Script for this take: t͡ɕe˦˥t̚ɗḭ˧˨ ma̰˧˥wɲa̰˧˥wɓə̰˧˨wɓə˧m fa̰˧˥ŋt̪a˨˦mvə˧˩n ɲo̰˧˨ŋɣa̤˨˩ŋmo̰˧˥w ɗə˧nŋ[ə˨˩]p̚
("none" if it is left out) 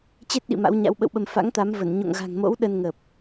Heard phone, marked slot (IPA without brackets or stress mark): ə˨˩